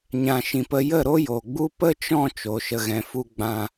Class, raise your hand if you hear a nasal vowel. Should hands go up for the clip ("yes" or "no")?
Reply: yes